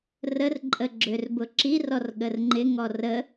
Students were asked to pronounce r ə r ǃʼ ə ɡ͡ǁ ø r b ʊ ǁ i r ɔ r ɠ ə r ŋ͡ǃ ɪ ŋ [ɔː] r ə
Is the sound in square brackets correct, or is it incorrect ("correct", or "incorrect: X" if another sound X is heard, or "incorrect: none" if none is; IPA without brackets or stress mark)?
incorrect: ɔ